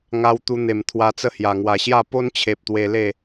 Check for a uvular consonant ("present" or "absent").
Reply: absent